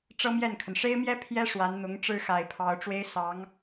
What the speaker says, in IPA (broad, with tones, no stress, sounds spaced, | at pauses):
ʈ͡ʂ ɤ˥ m j ɛ˥˩ n kʰ ə˩ n ʂ e˥ ɪ̯ m j ɛ˥ pʰ j ɛ˥ ʂ w a˧˥ n n̪ ʊ˧˥ ŋ ʈ͡ʂ ɻ̩˥ x a˨˩ ɪ̯ pʰ ɑ˧˥ ʊ̯ ʈ͡ʂ w e˥ ɪ̯ s ɑ˧˥ ŋ